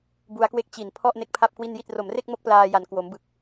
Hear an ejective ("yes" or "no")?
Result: no